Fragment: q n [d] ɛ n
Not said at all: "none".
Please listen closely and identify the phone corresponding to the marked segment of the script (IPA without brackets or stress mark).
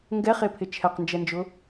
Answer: d͡ʒ